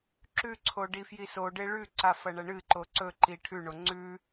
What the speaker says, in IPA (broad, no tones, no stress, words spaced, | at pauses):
ǁʉǀʰo ɖifjisoɖe ɭʉǀa fɐɳɐɳɨǃo ǀɵǃi ʈʰʉɳo ŋ͡ǀʉ